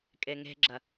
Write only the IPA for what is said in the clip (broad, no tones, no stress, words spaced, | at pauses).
kʼeŋe̤ɡ͡ǁɐ